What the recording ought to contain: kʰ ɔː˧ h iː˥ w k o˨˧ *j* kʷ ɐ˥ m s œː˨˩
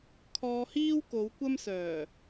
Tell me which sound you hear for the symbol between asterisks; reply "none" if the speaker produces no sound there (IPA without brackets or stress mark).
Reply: w